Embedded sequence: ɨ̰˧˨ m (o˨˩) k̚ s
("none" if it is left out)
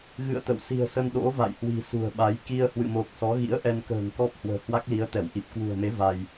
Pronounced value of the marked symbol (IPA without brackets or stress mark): o˨˩